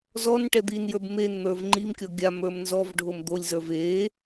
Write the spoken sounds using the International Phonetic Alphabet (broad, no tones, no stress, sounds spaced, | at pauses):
z ɔ n ʈ ɛ d̪ i n j ə˞ b m e n n̪ ə˞ v ŋ͡ǃ i m kʲ ɔ ɡʲ a m ə˞ m n z ɔ v ɖʱ o m d̪ o lʲ z ə˞ v e